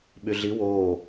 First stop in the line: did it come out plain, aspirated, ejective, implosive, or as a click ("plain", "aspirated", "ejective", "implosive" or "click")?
implosive